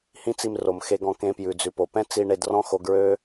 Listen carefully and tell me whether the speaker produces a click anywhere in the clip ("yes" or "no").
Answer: no